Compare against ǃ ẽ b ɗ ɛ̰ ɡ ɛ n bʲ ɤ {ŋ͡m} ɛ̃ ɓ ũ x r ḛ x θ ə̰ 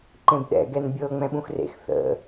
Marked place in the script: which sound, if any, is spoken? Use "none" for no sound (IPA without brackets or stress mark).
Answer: ŋ͡m